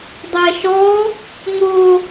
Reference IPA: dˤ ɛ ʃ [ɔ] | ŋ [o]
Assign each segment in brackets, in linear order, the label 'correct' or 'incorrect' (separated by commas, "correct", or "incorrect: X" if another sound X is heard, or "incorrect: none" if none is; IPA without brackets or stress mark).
correct, correct